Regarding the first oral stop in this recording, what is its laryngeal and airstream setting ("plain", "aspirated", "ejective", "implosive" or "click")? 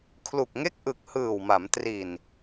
aspirated